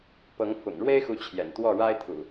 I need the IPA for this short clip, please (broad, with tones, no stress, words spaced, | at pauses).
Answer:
pɤ˨˦ŋfʊ̰˨˩ŋ ɻwe˦ɪ̯xu˨˦ t͡ɕʰjɛ̰˨˩nt̪wɔ˥˨ ɻa˦ɪ̯t̪ʰṵ˨˩